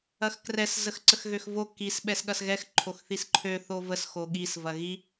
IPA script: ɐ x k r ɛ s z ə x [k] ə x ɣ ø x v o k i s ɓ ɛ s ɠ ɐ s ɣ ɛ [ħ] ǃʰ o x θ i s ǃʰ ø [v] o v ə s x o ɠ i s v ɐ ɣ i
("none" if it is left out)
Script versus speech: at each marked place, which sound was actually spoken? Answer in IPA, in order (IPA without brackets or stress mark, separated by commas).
ǀ, x, θ